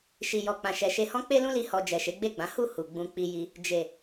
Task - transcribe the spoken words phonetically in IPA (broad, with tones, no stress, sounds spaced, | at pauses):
ʃ i˨ j ɔ˨ k͡p ã˨ ʃ ɛ˨ ʃ e˧ h ɔ̃˦ k͡p e˦ l ũ˦ l i˧ h ɔ˨ d͡ʒ ɛ˨ ʃ e˨˦ ɡ͡b e˦˨ ɡ͡b ã˨˦ h u˦˨ h u˨ ɡ͡b ũ˧ k͡p i˧ j i˧ | d͡ʒ e˨